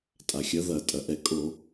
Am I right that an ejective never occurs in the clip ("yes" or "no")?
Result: no